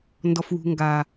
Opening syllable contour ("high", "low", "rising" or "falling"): low